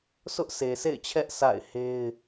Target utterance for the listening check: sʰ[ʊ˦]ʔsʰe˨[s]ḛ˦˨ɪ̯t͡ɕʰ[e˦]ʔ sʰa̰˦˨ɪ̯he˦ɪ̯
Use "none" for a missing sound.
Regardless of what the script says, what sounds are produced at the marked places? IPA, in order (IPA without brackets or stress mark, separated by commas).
ʊ˦, s, ɛ˦